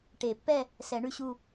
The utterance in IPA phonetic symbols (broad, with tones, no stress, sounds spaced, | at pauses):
ʈ e˨˩˦ pː ɛ˥˧ | s ɛ˨˩˦ ɳ ʉ˥˧ ɕ u˥˧